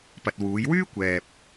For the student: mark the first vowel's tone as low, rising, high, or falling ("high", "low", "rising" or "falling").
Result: low